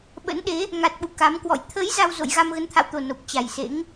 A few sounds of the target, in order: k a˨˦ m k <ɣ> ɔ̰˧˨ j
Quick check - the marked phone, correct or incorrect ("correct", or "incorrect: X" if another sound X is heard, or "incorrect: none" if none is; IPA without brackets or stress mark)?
incorrect: w